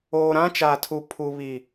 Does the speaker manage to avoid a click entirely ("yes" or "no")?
yes